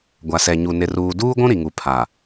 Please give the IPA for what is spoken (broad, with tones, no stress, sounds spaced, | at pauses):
ɡʷ a˨ s ɛ˨ ɲ u˨ n ɪ˨ r uː˨ d uː˦ ɡʷ ũ˦ ɾ i˨ ŋ u˨ pʰ a˨